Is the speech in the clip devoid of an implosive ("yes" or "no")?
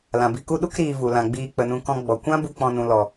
no